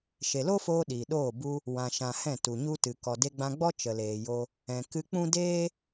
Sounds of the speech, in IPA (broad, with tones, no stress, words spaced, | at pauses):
ʃe˨lo˦foː˧ ɗiː˨ɗoː˦˨ bu˧ | wã˨ʃã˨ hɛ̃˦˨tu˨ɲu˦tɨ˨ kɔ˨de˧ɡ͡bã˧ɡ͡bɔ˦ t͡ʃə˨leː˨jo˧ | ɛ̃˨ kɨ˧k͡pũ˦ deː˦